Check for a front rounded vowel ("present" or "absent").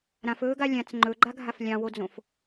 absent